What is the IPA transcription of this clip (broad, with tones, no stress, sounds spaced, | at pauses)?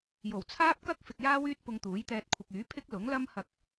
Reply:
j o˨˩ w t͡sʰ aː˥ p̚ k ɐ˥ k̚ f ɪ˨ k̚ j aː˥ w yː˥ t̚ p ʊ˧ ŋ t̪ uː˨˥ j t̪ ɛː˧ t̚ kʷʰ ɪ˨ k̚ yː˨˥ pʰ ɪ˥ k̚ l ʊ˨˥ ŋ l ɐ˥ m h ɐ˧ k̚